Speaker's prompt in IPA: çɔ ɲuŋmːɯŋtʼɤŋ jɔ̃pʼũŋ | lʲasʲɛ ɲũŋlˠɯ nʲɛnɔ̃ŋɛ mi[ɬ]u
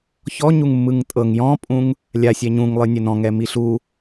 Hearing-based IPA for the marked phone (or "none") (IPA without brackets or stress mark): ɬ